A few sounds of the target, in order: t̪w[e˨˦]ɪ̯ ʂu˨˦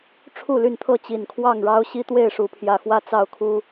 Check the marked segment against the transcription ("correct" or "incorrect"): incorrect